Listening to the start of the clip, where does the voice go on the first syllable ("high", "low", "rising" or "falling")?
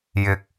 low